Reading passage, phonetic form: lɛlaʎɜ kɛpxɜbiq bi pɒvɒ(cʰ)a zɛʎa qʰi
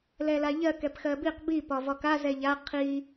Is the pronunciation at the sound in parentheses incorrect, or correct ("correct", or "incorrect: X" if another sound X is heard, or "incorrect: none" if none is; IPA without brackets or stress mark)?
incorrect: k